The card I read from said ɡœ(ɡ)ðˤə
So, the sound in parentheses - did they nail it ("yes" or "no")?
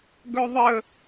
no